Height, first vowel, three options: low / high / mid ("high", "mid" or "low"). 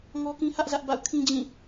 mid